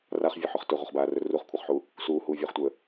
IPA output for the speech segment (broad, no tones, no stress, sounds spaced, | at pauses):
r a χ vʲ ɵ ħ ɵ χ t ɵ ʁʷ ʌ χ b aː r ɵ r u χ kʷʰ ʌ χ ħ u | s uː h uː vʲ ɵː χ tʷ əː